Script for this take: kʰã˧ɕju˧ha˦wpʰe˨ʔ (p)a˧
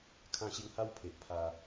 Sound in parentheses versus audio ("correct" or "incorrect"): incorrect